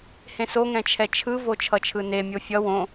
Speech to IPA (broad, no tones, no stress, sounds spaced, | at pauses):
h ẽ s o ŋ ɛ̃ t͡ʃʰ ɛ t͡ʃʰ ɯ v o t͡ʃʰ ʌ t͡ʃʰ ɯ n e mʲ o fʲ ʌ w õ